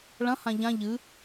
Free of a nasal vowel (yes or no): no